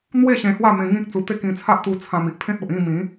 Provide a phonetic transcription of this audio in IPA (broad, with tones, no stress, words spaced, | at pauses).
n̪we˥˧ ɕẽ˧hwa˥˧ mẽ˧ŋĩ˦k̚ t͡su˧t̪e˥˧ kĩ˧t͡sʰa˦ʔt̪u˧ t͡sʰã˧mi˨ʔpʰẽ˦t̚o˨ʔ ĩ˥˧mĩ˨˦